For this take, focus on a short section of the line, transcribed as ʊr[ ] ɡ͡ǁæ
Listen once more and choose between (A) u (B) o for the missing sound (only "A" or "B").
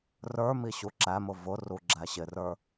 A